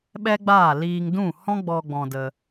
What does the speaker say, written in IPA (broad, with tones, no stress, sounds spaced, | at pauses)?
ɓ ɛ˦ ɡ͡b aː˦˨ l iː˧ ŋ d ũ˦˨ h ɔ̃˦ ɡ͡b ɔ˧ ɡ͡b ɔ̃˧ d ə˧